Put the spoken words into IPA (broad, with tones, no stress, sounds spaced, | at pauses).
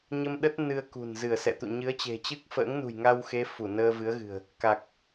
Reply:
ɲ ə˧ m ɗ ə˦˥ t̚ n ɨ˧ ə̯ k ṳ˨˩ n z ɨ˧˩ ə̯ s ɛ̰˧˨ t̪ ṵ˧˨ ɲ ɨ˨˦ ə̯ t͡ɕ e̤˨˩ t͡ɕ ɨ˦˥ k̚ f ə̰ː˧˥ ŋ n ṳ˨˩ j ŋ a˧ w x e˨˦ f u˧˩ n əː˧ v ɨ˨˦ ə̯ ɣ ɨ̤˨˩ ə̯ | k a˨˩ k̚